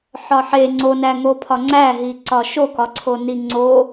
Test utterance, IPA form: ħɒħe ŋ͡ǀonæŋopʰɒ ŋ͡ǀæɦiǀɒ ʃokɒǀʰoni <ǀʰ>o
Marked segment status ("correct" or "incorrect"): incorrect